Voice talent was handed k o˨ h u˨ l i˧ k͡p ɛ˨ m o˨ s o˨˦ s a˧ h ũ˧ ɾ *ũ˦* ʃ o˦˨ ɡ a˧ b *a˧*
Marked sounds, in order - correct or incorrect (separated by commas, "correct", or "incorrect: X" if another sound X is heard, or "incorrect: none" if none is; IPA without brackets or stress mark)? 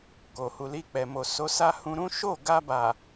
correct, incorrect: a˨